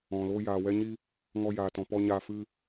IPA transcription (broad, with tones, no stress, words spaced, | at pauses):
ɔ̃˨ lo˧jaː˨wɛ˧ɲi˧ | ŋɔ˧jaː˨tɔ̃˨pɔ˧ ɲa˧ fɨ˧